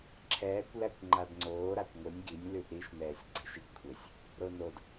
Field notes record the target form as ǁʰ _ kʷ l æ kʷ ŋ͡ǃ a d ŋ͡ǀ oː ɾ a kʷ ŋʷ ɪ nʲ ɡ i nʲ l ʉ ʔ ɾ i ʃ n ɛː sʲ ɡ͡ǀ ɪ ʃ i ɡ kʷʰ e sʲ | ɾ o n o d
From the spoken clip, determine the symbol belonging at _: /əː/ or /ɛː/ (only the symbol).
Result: ɛː